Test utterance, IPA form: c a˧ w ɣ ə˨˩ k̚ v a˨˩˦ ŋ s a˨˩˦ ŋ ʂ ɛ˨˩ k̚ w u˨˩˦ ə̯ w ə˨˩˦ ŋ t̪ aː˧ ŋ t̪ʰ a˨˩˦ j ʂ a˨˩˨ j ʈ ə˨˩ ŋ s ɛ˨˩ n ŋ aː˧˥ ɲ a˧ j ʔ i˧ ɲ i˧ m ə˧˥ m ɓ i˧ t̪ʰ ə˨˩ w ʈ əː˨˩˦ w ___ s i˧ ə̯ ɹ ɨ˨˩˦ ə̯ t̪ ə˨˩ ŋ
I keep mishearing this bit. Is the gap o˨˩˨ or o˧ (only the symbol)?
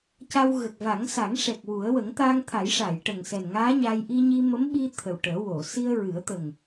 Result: o˨˩˨